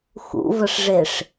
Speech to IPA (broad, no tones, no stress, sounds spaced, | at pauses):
x ṵ v ə ʂ ʐ e ʂ